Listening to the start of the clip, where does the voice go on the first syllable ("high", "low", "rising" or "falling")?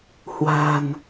low